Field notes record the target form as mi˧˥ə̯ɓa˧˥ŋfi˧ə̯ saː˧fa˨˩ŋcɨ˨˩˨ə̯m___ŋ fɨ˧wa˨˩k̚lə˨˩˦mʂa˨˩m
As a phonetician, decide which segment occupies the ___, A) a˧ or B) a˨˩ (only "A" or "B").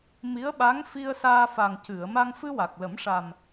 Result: A